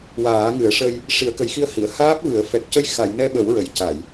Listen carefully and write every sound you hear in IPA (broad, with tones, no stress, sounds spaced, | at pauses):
w aː˨˩˦ ŋ ɨ˨˩˦ ə̯ ʂ ə˧ j | ʂ i˨˩˦ ə̯ k ə˨˩˦ j x i˧ ə̯ h i˨˩˨ ə̯ h aː˦˥ p̚ v ɨ˨˩˦ ə̯ f ɛ˨˩ k̚ c ə˧ j x a˨˩˨ j n ɛ˧ ɓ ə˨˩˦ w ɹ ə˨˩˨ j c a˨˩˨ j